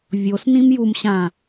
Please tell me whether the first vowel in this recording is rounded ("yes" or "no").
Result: yes